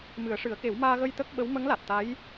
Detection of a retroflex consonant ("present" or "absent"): present